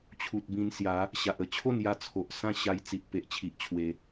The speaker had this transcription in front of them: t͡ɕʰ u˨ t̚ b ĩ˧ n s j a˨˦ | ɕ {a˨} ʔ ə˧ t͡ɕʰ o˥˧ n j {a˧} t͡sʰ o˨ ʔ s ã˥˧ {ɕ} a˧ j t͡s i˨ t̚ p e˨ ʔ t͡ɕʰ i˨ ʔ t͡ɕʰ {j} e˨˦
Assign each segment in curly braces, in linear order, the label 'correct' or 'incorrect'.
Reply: correct, correct, correct, incorrect

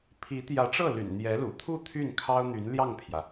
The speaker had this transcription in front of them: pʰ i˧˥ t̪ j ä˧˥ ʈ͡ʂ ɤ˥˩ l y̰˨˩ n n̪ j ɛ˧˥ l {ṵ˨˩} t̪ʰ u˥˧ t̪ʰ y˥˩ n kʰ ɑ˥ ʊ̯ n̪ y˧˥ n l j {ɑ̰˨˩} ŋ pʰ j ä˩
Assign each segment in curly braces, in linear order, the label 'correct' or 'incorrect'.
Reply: correct, incorrect

